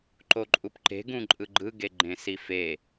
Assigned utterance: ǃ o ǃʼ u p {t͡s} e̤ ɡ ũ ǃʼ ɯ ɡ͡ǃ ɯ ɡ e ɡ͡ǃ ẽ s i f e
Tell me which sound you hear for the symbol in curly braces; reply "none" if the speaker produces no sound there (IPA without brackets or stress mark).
ǃ